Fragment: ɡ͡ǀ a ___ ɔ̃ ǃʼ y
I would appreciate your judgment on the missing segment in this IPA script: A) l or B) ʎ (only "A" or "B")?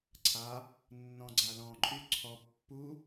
A